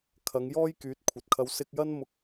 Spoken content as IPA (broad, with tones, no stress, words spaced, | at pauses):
kʰɐ˨˧ŋ jɔː˥j kyː˨˥t̚kʷʰɐ˨t̚kʰɐ˧w sɪ˧k̚jɐ˥n mʊ˥k̚